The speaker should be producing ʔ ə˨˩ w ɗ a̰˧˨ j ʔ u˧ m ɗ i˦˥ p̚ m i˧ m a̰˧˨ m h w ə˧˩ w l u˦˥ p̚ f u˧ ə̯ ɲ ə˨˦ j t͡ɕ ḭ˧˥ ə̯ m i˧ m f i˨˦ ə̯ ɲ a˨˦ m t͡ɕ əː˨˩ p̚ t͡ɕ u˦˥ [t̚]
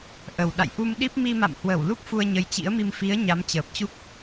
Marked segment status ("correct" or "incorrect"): incorrect